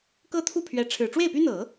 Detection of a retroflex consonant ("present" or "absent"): present